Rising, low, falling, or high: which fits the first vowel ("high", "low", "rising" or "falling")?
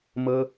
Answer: high